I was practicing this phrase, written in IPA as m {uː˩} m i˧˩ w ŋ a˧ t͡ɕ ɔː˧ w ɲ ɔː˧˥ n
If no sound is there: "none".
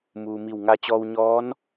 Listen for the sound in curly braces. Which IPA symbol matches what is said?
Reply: uː˩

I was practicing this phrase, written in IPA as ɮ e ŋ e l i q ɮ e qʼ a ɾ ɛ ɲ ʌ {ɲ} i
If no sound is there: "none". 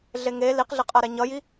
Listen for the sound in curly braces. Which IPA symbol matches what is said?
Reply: j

